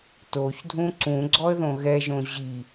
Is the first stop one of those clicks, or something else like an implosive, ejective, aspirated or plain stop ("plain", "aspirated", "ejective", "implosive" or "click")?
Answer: plain